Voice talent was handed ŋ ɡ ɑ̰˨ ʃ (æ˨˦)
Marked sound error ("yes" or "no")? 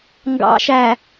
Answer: yes